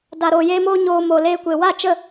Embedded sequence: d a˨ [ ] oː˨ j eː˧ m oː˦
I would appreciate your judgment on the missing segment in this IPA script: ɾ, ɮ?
ɾ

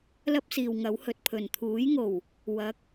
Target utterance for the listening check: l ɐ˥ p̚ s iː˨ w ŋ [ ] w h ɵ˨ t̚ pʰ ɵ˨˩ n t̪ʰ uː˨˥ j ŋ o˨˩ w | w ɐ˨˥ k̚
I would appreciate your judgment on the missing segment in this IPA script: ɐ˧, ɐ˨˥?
ɐ˨˥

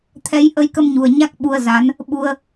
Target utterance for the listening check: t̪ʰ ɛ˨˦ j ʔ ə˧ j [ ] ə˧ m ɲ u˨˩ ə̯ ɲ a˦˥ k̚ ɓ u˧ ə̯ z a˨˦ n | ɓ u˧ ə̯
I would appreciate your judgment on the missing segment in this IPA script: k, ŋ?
k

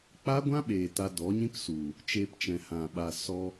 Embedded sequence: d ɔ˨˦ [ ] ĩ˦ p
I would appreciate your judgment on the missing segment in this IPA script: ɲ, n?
ɲ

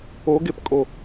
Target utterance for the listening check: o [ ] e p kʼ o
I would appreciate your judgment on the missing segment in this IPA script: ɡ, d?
ɡ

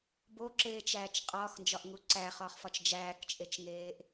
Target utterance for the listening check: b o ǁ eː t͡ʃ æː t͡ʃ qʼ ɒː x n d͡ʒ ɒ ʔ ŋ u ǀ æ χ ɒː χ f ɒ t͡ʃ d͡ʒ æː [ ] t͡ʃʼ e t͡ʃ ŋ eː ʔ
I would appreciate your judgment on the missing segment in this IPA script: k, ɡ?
k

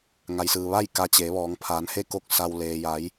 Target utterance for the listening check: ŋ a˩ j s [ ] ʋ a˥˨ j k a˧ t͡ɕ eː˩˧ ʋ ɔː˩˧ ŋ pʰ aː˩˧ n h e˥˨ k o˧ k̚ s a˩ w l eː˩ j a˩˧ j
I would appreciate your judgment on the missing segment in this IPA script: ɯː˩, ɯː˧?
ɯː˩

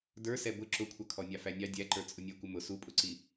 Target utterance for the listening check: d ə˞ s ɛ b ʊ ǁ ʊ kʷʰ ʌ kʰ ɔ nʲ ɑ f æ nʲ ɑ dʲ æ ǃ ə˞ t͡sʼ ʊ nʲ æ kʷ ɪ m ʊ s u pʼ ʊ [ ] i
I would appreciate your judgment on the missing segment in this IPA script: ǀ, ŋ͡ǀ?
ǀ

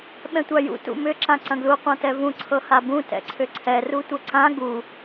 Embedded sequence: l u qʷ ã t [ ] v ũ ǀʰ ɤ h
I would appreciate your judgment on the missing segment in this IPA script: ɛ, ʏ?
ɛ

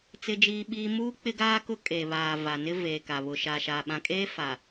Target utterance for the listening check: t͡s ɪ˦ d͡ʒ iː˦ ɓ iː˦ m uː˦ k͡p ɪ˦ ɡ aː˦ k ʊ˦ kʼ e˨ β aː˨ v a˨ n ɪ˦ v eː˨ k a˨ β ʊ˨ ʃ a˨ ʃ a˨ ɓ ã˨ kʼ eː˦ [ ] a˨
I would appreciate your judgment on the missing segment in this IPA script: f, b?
f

